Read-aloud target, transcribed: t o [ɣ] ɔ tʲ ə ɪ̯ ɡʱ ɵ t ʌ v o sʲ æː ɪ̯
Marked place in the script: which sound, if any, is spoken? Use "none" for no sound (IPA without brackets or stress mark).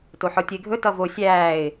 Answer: ħ